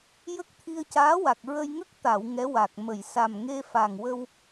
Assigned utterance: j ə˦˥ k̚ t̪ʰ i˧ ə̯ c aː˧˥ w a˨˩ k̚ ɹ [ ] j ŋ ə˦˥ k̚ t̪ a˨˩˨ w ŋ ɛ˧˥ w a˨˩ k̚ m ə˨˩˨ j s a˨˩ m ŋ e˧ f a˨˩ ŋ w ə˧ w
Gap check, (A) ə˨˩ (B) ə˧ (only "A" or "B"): B